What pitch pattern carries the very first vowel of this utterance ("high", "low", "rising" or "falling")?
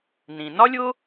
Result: low